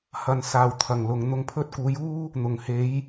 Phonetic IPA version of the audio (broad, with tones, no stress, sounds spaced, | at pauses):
h ɐ˨˩ n s aː˨˩ w t̪ʰ ɐ˨˩ ŋ l ʊ˨ ŋ n̪ ʊ˧ ŋ pʰ ɵ˥ t̚ k uː˨˧ j uː˥ | n̪ ʊ˨˩ ŋ h e˨˧ j